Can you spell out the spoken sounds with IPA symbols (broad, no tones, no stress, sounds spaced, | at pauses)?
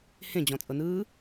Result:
h ẽ d͡ʑ ɔ̃ t͡sʼ ɤ n ɯː